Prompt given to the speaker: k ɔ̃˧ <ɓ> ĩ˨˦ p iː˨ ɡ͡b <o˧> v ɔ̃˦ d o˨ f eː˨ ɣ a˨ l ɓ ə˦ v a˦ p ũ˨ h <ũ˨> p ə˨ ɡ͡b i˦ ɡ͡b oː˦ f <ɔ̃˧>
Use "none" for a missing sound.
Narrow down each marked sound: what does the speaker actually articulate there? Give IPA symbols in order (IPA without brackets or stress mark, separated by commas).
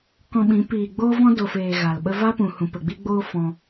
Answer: ɓ, o˦, ũ˨, ɔ̃˧